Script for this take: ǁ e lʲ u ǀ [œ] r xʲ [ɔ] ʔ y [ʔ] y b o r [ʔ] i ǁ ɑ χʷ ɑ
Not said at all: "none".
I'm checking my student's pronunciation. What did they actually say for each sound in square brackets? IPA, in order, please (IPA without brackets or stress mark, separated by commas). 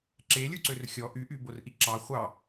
ø, ɔ, ʔ, ʔ